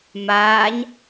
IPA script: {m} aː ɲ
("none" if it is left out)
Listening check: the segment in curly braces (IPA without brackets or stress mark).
m